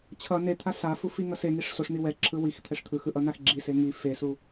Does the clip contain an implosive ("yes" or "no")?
no